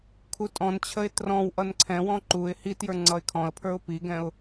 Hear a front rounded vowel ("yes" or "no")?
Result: no